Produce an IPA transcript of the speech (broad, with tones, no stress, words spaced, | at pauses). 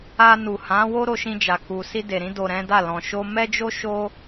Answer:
a˧ nu˨hã˨˦ wo˦ɾo˧ʃĩ˧d͡ʒa˨ ku˨si˧de˨ɾĩ˧ do˨ ɾɛ̃˨˦da˦˨lɔ̃˨ ʃo˧mɛ˦d͡ʒo˦ ʃo˦